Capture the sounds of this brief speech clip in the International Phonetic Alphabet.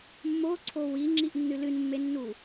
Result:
mː o ǀʰ o w i ŋ͡ǁ i ʔ nː ɨ l ɨ n mː e nː u

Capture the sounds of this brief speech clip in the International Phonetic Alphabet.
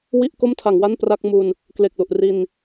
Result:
w i˥˩ ʔ k o˥˩ m tʰ a˩˦ ŋ w a˥˩ n p r a˥˩ k̚ m u˧ n | k l e˨˩ k̚ l u˨˩ ʔ r i˧ n

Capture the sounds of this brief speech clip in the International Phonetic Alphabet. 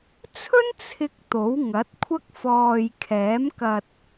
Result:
t͡sʰ ɵ˥ n t͡sʰ ɪ˧ k̚ t̪ o˨˥ w ŋ ɐ˨˥ t̚ kʷʰ ɐ˥ k̚ f ɔː˨ j kʰ ɛː˨˥ m k ɐ˨ t̚

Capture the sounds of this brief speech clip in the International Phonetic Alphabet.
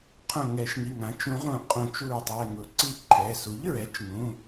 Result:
qʰ õ˧˩ ŋ ɛ˨˩˦ ʃ ŋ i˩˧˩ ŋ ã˩˥ t͡ʃ ũ˨˩˦ ʁ ũ˨˩˦ qʼ õ˨˩˦ t͡ʃ u˧˩ ɹ tˤ ɛ˩˧˩ ŋ ʊ˨˩˦ ǀ i˦ ǃʰ ɛ˩˧˩ s u˩˥ ʎ ɹ ɛ˩˥ t͡ʃ ŋ ũ˩˧˩

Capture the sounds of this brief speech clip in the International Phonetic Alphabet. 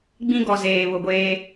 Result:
ɡ͡b ĩ˦ ɡ ɔ˨ z eː˨ β ʊ˨ ɡʷ eː˦

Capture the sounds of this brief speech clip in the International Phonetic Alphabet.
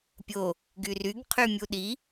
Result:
pʲ o | ɡ y r y ɡ qʰ y mʲ u ɗ i

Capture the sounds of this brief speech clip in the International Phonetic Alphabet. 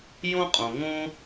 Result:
j õ˥ qʼ õ˩ ŋ õ˥

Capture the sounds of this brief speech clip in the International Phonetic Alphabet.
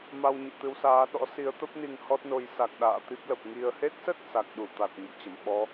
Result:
m a˧ w ɲ ḭ˧˨ t̪ ɨ˧ w s aː˨˦ ɗ ɔ̰˧˥ s i˨˦ ə̯ t̪ ə˦˥ p̚ n i˧ ŋ h ɔ˦˥ t̚ n o˨˦ j s a˨˩ k̚ ɗ a̰ː˧˨ t̪ i˦˥ p̚ l ə˨˩ p̚ ŋ i˨˩ ə̯ h e˦˥ t̚ s ə˦˥ t̚ s a˨˩ k̚ ɗ u˧˩ t̪ a˨˩ t̚ ɲ ə̰˧˨ m t͡ɕ ə˧˩ m ɓ ɔ˨˦

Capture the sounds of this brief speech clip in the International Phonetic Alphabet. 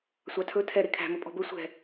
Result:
sʷ ɑ tʰ ɵ tʰ ɛ ɾ e kʰ æ̤ m ɵ pʼ ɔ̤ b ɵ sʷ ɛ̤

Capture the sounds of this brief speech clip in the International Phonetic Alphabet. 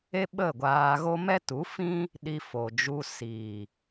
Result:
e˦ ɓ ə˦˨ ɡʷ aː˧ ɣ o˦ m ɛ˦ t u˨˦ f ĩ˦ | ɗ i˨ f o˨ d͡ʒ u˧ s iː˨

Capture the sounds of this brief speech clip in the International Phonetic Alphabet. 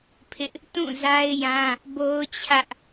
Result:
pʰ ɪ˦ ʔ | t ũ˦˨ z a˦ ɪ̯ j ã˦ | b o˦ ʊ̯ t͡ɕʰ ä˦ ʔ

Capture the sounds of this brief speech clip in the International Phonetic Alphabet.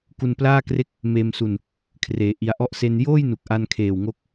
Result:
k u˧ n p l aː˥˩ k r e˥˩ k̚ | m eː˧ m s u˧ n | kʰ r eː˩˦ ʔ i˧ a̯ ʔ ɔ˥˩ ʔ s e˧ n j oː˥˩ j n u˨˩ k̚ ʔ a˧ n kʰ eː˨˩ w ŋ o˦˥ k̚

